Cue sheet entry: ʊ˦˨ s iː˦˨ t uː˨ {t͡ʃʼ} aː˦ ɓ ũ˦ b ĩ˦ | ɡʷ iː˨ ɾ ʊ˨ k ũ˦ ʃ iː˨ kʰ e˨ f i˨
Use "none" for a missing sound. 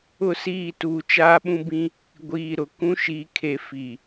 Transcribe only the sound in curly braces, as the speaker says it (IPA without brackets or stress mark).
t͡ʃ